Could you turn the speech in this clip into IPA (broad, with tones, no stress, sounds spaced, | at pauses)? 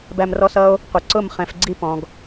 b æ˧ m r ɔ˦ s ʌ˦ o̯ | qʷ ə˨ ǀ ʊ˦˨ m χ ɛ̃˨ f ɡ͡ǀ i˧ p ɔ̃˨ ɡ